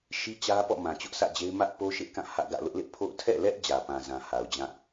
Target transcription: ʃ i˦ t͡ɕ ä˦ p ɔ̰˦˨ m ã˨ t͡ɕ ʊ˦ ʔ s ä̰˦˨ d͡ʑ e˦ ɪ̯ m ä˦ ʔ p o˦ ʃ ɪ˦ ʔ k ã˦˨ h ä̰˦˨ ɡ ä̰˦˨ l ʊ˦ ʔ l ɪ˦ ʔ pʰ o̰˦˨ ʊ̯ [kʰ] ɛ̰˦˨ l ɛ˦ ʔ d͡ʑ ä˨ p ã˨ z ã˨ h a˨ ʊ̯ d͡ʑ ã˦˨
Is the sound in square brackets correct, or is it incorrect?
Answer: incorrect